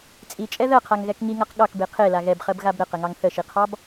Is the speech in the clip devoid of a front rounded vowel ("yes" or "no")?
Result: yes